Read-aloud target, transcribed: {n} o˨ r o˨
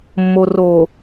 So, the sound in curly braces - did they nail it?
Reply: no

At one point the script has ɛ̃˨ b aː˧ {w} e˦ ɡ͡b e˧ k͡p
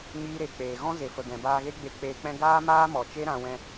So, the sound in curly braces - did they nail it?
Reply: no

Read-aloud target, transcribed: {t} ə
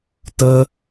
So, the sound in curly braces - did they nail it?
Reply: yes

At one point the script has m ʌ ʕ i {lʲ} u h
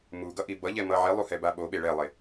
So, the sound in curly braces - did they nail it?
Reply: no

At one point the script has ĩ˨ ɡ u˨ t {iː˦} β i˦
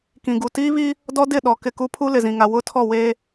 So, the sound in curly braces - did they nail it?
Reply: yes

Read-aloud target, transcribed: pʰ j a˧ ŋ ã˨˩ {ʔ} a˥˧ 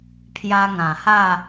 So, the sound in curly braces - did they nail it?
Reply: no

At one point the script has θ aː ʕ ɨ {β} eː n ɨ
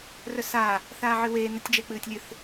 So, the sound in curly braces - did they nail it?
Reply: no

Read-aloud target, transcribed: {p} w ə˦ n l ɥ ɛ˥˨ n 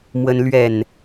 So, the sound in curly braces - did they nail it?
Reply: no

